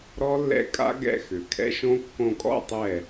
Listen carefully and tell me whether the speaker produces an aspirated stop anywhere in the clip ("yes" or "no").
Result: yes